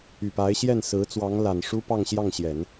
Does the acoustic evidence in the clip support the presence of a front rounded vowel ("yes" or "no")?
yes